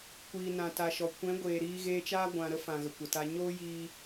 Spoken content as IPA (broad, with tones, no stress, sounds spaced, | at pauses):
kʷ iː˨ n ã˨ t a˨ ʃ ɔ˨ kʷ ɛ̃˨˦ ɡʷ eː˨ ɾ iː˧ ɣ eː˧ t͡ʃ aː˦ ɡʷ ã˨ ɾ ə˧ f ã˨ ɣ ə˨ kʷ ə˨ t a˧ ɲ oː˦ j iː˧